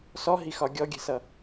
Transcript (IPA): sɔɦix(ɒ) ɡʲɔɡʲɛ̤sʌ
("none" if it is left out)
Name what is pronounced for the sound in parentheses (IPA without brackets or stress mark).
ɒ